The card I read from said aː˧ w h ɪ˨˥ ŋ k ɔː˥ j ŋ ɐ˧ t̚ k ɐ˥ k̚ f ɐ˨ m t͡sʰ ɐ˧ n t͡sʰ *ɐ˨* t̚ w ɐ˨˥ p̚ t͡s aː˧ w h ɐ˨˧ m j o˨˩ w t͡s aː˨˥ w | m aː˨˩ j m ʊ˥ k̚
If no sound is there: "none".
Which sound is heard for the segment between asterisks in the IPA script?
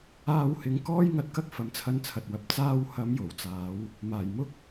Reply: ɐ˨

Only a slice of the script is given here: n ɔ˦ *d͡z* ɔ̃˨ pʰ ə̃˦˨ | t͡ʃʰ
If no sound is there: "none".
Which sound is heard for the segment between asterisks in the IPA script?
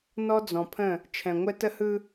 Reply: d͡z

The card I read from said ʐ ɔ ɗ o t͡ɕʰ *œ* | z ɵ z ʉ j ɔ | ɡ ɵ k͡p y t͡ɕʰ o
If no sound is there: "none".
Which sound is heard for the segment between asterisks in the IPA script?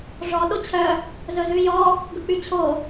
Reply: œ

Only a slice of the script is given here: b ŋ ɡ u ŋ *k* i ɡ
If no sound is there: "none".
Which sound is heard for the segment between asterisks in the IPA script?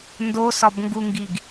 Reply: ɡ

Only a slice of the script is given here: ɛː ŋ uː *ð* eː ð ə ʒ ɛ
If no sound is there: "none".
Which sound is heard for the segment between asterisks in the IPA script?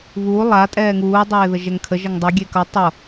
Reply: dˤ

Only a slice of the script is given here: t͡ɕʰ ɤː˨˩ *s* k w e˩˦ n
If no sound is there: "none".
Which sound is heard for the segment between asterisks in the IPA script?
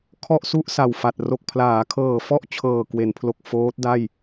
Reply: none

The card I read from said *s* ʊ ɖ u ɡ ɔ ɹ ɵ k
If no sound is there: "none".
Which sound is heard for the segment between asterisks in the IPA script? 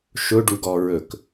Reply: ʃ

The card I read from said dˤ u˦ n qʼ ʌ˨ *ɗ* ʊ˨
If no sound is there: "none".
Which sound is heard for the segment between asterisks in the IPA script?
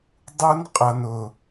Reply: n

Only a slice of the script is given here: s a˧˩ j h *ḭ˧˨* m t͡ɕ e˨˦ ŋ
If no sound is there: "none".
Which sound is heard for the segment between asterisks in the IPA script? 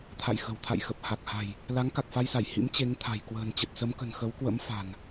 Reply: ḭ˧˥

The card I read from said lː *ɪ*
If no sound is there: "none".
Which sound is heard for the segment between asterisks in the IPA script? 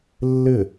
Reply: ɪ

